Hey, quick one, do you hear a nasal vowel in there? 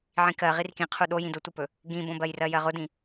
yes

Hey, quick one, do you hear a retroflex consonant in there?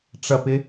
yes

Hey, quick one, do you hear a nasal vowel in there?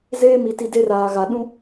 yes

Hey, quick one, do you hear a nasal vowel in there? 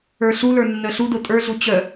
no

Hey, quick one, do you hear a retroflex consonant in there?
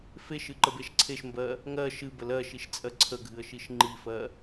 no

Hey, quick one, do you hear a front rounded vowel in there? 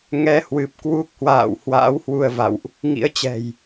no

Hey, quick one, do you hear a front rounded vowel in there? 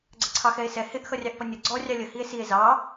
no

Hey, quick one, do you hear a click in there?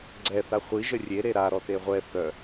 yes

